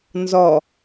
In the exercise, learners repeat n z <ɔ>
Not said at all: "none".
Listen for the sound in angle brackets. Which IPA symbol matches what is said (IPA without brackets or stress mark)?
ɔ